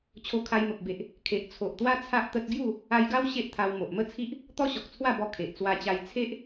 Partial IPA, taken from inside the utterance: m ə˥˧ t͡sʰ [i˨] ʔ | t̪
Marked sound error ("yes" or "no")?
yes